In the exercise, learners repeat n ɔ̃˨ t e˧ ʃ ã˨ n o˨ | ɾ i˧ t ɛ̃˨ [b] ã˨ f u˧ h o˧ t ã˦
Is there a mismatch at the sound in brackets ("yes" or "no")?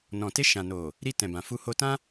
no